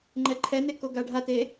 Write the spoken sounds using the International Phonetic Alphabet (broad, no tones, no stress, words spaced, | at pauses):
ŋ͡ǃɛǃʰɛne koɡaɖʱate